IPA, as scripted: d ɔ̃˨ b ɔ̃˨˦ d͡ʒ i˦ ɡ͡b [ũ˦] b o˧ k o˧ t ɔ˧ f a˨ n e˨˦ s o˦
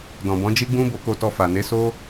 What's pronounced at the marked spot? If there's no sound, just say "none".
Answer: ũ˦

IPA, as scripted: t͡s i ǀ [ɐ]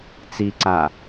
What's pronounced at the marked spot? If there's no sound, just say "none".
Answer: a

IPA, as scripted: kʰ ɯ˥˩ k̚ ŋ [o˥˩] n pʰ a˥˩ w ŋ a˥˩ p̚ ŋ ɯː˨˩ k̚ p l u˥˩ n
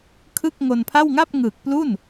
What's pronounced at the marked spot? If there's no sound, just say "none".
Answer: o˧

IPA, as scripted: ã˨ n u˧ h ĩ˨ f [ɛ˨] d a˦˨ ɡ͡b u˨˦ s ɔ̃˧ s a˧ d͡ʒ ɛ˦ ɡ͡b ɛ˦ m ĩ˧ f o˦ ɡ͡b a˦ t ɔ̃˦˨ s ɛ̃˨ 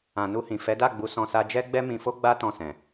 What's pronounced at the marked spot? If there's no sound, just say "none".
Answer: ɛ˨˦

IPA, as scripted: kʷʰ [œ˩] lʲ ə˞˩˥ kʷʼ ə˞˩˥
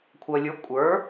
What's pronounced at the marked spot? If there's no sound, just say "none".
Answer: œ˩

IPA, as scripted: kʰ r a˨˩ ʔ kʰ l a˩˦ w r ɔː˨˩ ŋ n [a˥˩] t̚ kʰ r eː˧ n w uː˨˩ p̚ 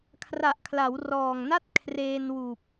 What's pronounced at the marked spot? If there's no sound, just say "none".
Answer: a˥˩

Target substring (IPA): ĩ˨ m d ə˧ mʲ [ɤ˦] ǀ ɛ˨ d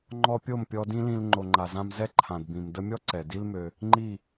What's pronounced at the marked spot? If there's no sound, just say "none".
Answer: ɔ˦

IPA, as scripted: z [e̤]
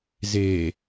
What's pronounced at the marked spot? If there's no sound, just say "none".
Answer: e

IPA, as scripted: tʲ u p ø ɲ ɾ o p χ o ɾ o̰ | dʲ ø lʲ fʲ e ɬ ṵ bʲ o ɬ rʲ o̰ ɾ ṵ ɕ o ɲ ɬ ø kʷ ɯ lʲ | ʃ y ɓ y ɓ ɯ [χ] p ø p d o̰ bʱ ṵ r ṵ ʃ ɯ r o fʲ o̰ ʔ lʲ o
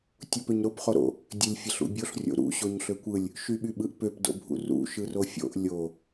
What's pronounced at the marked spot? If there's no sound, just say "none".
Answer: ʔ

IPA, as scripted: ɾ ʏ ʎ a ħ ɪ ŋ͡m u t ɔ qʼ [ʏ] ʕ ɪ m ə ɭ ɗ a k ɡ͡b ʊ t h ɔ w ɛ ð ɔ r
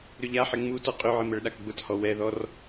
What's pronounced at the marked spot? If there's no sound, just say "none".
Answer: ʏ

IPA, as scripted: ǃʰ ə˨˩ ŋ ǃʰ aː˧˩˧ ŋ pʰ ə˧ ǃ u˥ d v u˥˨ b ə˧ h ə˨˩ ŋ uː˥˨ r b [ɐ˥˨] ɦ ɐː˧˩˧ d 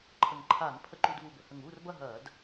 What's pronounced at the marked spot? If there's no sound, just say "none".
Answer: ɐ˥˨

